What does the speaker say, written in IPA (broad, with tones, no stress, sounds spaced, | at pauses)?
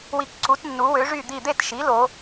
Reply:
w i˧ k ǀ u˩˥ t nː u˩˥ w ø˩˥ ʐ y˧˩ d̪ i˧˩ d̪ e˥˩ t ʃ i˩˥ l o˩˧